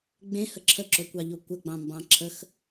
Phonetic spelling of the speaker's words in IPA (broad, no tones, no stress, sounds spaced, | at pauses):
ɡ͡b ẽ h ə ǁʰ ə ǁ o kʷ ɑ ʎ o kʷ ə ɡ͡b ɑ̃ m b ɑ̃ ǁʰ ə x